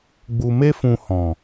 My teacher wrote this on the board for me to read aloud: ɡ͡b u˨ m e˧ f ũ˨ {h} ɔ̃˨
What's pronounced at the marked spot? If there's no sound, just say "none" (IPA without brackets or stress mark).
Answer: h